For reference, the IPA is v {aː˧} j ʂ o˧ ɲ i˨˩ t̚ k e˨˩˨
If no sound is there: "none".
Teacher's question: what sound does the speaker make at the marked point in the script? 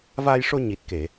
aː˧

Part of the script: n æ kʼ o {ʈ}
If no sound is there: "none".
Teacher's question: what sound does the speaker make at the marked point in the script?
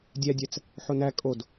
d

